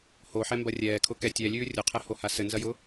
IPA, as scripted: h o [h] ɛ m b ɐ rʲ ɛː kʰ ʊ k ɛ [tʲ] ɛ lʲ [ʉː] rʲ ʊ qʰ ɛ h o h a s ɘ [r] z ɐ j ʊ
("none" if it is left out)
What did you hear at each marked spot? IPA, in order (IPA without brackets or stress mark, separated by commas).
ħ, tʲ, ʉː, n